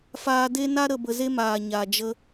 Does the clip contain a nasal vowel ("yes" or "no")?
no